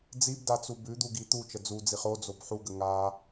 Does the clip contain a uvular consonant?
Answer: yes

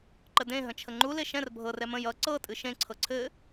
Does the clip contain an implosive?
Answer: no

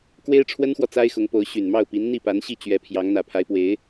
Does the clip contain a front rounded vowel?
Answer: yes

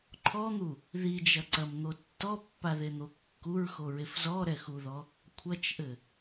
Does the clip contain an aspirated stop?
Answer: yes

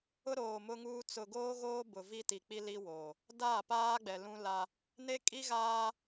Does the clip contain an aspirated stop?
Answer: no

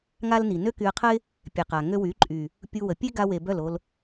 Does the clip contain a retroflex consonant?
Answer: no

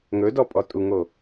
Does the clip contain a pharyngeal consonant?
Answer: no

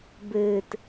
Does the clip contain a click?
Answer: no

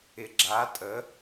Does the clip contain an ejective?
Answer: yes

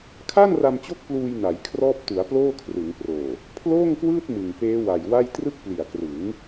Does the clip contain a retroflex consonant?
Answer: no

